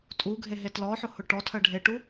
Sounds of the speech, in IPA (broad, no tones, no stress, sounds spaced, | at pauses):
tʼ u ɡʱ e ɦ e t l ɔ ħ ʊ h ʊ ʈ ɔ tʰ ɜ ɖʱ e ʈ u